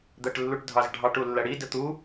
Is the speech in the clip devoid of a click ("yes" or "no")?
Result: yes